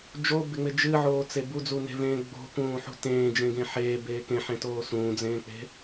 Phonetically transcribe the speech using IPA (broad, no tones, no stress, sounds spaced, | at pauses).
d͡ʒ o b ɪ ŋ͡m ɪ d͡ʒ ɨ ʕ oː t͡s e b u d͡z u n e̤ v ẽː ɡ͡b o̤ k ũː ħ ṳ t ẽː d͡ʒ ẽ ɡ ẽ ħ eː b eː k ẽ ħ ẽ t oː s ũː d͡z ẽː k͡p e̤